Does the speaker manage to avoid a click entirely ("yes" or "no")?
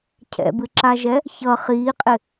no